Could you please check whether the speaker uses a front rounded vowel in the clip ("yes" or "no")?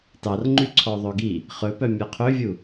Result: yes